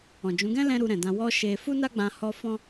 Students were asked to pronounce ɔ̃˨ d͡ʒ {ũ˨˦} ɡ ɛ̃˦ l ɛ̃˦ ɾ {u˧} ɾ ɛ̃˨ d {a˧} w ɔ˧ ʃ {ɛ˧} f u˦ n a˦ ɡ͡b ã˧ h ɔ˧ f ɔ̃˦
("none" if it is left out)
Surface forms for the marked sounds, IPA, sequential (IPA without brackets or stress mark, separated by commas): ũ˨˦, u˧, ã˧, e˧